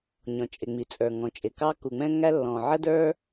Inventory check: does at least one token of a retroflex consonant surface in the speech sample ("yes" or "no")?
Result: no